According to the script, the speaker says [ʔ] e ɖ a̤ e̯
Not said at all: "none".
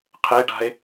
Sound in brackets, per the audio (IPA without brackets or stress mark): qʰ